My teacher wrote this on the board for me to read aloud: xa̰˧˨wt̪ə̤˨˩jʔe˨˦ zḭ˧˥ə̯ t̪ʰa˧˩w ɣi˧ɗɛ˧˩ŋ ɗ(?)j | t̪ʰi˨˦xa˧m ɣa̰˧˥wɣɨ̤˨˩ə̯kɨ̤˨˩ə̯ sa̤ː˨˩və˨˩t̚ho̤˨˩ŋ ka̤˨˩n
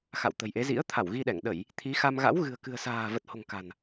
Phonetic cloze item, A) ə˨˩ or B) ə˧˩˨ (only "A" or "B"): B